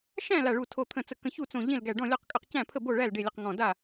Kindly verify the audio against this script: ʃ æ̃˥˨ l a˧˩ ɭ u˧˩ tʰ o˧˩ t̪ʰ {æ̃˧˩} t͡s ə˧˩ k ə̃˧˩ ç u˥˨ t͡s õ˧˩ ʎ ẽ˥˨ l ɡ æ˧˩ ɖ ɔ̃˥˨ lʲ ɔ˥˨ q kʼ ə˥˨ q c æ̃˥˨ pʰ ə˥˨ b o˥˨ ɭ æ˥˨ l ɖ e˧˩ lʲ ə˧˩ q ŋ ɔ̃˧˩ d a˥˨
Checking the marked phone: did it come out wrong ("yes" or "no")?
yes